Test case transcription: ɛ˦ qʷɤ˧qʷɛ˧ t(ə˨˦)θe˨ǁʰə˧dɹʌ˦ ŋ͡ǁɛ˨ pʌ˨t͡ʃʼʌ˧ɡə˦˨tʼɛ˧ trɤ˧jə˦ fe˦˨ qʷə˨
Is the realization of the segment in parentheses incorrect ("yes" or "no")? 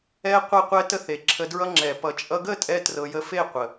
yes